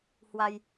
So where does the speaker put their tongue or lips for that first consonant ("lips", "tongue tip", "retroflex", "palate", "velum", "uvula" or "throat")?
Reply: throat